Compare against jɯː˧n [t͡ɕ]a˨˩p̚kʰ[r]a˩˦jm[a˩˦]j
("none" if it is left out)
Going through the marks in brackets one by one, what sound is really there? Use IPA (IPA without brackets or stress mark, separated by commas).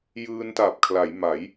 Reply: t, l, a˩˦